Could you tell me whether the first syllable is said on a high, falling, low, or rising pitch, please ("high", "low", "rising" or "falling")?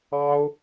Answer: high